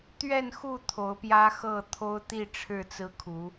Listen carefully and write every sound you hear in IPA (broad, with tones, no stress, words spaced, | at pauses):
t̪ɥɛ˥˨nxu˥˨ t̪ʰo˨˦ʊ̯pjä˦xɤ˥˨t̪ʰo˦ʊ̯ t̪i˥˨ ʈ͡ʂʰɻ̩˥˨t͡sɹ̩˦kʰu˨˦